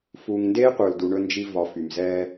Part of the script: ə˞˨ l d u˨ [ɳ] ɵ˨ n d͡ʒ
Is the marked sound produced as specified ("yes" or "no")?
yes